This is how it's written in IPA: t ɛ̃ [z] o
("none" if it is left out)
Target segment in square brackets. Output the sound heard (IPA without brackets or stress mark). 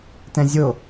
zʲ